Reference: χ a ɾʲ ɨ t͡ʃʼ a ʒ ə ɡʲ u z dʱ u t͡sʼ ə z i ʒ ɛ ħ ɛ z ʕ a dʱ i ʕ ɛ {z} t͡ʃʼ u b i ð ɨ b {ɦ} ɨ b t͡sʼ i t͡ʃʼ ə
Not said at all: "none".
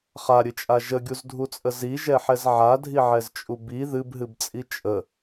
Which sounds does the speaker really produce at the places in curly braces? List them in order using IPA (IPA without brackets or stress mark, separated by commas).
z, ɦ